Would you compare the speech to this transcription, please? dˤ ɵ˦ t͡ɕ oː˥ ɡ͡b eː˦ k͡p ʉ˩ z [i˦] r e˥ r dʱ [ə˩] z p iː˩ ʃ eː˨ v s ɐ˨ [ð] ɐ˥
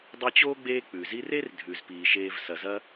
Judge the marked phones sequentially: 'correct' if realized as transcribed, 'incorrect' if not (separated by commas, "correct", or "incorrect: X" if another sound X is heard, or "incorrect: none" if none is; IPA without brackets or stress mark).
correct, incorrect: ʉ˩, incorrect: z